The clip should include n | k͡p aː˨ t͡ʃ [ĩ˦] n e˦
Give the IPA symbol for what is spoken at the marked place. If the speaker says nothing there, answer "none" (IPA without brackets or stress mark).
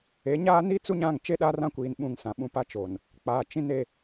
ĩ˦